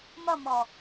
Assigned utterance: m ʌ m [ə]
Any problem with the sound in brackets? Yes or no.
yes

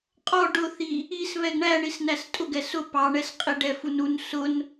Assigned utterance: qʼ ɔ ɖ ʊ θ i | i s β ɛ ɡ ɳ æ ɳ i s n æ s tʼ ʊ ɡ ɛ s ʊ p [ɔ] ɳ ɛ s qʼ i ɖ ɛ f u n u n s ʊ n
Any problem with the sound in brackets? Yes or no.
yes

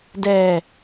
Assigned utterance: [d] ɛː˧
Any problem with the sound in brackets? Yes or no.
no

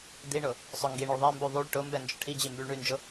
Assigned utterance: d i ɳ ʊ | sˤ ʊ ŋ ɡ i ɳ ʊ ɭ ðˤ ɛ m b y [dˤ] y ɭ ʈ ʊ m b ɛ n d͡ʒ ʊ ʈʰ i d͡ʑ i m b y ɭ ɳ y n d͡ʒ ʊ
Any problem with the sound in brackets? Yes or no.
yes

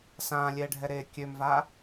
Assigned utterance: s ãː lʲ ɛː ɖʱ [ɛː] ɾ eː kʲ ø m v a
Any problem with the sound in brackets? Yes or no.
yes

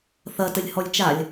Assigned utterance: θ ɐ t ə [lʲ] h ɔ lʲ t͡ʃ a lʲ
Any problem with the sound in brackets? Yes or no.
no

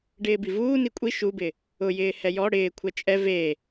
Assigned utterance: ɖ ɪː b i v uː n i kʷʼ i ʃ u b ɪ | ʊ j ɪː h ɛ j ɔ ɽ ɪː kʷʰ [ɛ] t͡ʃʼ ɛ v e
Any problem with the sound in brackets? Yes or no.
no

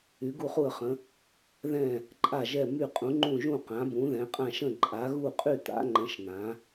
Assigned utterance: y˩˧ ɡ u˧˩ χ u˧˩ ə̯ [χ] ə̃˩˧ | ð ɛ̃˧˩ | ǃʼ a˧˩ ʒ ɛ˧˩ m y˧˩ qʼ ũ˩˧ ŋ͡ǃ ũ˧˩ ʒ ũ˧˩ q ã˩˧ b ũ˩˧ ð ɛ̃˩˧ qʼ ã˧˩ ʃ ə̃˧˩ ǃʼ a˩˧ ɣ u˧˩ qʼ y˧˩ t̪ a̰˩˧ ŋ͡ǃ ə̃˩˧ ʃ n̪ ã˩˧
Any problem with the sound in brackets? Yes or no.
no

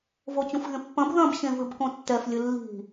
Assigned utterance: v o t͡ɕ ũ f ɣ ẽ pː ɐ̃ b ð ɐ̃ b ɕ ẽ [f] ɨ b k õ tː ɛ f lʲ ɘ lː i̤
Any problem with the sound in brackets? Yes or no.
yes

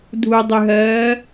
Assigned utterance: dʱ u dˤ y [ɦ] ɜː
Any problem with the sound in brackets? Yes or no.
no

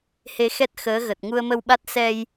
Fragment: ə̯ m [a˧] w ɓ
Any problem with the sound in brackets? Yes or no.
yes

